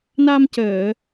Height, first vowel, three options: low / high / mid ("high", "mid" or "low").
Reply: low